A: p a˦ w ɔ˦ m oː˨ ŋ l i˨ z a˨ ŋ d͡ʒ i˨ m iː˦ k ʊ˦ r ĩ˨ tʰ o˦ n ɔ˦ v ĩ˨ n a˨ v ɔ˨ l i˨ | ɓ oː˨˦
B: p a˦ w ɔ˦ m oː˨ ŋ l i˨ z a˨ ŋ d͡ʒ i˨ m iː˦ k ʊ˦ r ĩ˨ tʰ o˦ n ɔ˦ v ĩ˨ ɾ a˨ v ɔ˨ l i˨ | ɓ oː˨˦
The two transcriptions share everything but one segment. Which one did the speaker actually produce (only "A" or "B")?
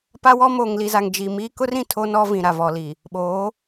B